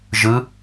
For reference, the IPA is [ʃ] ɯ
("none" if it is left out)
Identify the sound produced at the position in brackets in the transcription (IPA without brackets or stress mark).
ʒ